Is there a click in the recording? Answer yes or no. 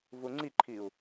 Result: yes